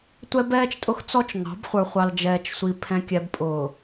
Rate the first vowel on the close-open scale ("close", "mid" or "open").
mid